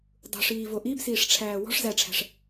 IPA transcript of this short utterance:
dˤṳʂiːvo ʔibsiːʂʈ͡ʂʰæː wɔ̤ʂ zæʈ͡ʂʰæ̤ʂ

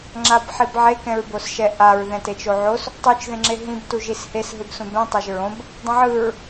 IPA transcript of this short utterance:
ŋ͡ǁabħibʕe kɛ̃ɹbosʃɛʔaɹ ðɛ̃tet͡ʃoʕos | tˤut͡ʃ ðẽŋ͡ǁeɦĩb tuʒishes ɦɯbsũbɛ̃ tˤaʒɹõb | dˤɛ̃ʕɯɹ

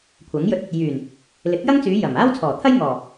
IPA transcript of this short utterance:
kʷʰɐ˨˥ŋjɵ˧t̚ | jyː˨˩n | lɪ˨˥k̚jɐ˥ŋt͡syː˨˧ jɐ˨˩m aː˥wt͡sʰɔː˨˩t̪ʰɐ˥j ŋɔː˨˩

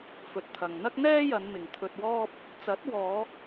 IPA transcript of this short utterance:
fɵ˨t̚t̪ʰɐ˨ŋ n̪ɐ˥k̚n̪ɛː˥jɐ˨˧nmɪ˨ŋ t̪ʰɵ˧t̚wɔː˥p̚ | t͡sɐ˨˥t̚wɔː˨˧

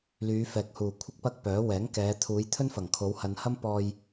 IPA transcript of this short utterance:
lyː˨˧fɛː˨k̚huː˨˩ kʷʰɪ˥k̚pɐ˥k̚pœː˨˥ wɛː˨˥ŋkɛː˨˧ t̪ʰuː˨˧jt̪ʰɵ˥nfɐ˨˩ŋkʰo˨˧w hɐ˨nhɐ˥m pɔː˧j

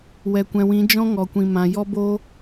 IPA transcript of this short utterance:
wɛ˨kʷɛ̃˨wĩ˨˦ d͡ʒɔ̃˦ŋɔ˨ kʷĩ˨mã˨ jɔ˦bo˦

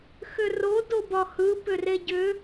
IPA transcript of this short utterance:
xʏro dobɒhɯ pʏreɟʏ

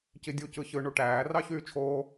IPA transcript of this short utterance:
cidʲu cɯçɯ ɳuʈæː rɑçyːt͡ʃʰoː

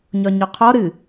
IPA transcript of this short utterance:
ɲɒɲɒqʰɔ ɾɨ

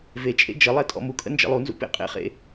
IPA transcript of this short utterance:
vet͡ʃʼḛ d͡ʒə lˠetʼɔ̰mukʼə̰ nd͡ʒə̰lˠunzṵ pḛqʼḛχḛ

